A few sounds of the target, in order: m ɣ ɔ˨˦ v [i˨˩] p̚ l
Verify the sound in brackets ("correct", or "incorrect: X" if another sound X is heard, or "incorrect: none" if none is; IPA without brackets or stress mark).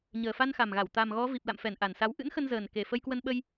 correct